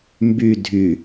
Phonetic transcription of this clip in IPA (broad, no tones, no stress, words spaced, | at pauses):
mby dʱy